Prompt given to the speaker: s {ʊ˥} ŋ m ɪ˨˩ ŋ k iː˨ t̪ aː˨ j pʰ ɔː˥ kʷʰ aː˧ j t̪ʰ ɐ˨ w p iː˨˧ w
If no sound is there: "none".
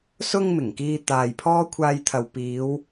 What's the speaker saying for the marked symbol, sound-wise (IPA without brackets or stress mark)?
ʊ˧